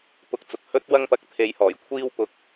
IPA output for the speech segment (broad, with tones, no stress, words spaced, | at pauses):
pʊ˨˥k̚t͡sʊ˨k̚hɵ˥t̚ wɐ˥ŋpɐ˧k̚t̪ʰe˨˧jhɔː˨˩j kʷʰiː˧wpʊ˨˥k̚